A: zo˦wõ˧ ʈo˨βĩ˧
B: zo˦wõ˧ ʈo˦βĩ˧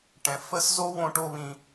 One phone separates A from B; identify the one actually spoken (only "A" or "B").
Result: B